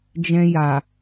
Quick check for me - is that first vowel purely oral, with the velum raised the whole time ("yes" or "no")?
no